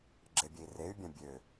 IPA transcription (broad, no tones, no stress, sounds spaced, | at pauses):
ɡ͡ǁ e bʲ e i̯ r e y̯ bʲ ã bʲ ø